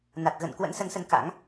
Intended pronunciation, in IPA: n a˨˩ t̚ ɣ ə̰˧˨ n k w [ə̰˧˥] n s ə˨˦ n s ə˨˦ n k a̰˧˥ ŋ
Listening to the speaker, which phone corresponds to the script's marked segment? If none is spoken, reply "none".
ə̰˧˥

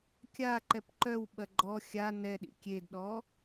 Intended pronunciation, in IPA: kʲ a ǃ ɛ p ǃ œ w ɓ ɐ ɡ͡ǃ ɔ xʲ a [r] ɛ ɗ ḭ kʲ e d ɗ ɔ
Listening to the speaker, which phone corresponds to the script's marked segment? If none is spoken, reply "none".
n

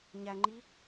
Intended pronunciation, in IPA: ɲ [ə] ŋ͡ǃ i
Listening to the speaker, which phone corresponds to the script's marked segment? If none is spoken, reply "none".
æ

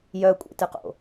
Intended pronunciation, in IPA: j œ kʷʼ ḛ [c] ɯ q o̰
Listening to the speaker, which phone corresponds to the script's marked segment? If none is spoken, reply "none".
t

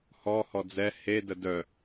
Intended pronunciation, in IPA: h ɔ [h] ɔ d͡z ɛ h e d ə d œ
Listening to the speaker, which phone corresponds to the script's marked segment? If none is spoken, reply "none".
h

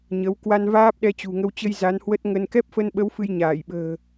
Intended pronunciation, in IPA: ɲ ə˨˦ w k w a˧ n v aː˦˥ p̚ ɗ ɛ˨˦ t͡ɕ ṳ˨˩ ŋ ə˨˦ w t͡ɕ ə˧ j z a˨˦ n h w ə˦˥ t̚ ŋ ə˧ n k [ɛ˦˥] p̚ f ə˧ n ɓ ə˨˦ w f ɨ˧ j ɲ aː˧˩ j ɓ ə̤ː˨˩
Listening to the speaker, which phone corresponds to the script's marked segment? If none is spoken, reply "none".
ɛ˦˥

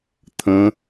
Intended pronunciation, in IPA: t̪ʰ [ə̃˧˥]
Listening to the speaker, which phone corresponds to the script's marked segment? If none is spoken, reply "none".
ə̃˧˥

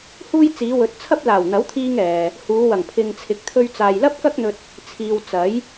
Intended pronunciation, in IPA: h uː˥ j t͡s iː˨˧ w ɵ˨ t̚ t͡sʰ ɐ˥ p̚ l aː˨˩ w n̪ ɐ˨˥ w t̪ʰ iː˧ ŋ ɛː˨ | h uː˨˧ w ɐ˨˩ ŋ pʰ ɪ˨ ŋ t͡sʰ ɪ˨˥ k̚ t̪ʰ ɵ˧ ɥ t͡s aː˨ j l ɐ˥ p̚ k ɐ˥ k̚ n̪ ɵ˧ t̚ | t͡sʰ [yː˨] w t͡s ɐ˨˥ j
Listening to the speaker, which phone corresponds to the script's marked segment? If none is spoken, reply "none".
iː˨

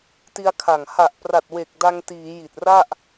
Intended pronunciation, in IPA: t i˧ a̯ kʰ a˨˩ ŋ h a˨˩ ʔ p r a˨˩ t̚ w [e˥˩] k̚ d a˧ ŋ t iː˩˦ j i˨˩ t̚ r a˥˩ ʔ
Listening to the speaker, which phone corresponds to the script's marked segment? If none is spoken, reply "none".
e˨˩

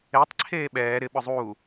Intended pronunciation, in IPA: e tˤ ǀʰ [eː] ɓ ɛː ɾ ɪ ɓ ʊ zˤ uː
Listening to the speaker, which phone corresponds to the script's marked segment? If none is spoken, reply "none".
eː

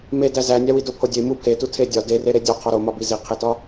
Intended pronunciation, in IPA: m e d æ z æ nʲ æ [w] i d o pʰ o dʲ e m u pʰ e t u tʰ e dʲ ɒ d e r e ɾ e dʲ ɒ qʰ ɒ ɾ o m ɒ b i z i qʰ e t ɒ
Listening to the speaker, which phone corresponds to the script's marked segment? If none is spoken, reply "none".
w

